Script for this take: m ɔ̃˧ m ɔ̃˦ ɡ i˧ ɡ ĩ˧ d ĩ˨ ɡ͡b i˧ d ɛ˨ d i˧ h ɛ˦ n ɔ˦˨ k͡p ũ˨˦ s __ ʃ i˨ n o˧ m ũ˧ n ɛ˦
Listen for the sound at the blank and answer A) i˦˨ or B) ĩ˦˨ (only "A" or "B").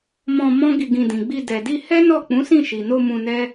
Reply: B